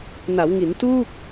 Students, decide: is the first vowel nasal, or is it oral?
oral